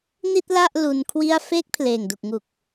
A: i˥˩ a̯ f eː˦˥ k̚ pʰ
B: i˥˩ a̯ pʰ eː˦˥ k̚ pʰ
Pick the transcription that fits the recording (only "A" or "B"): A